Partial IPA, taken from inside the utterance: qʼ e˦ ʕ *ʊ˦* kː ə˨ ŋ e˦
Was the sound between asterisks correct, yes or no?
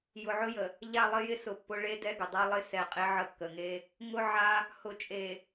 no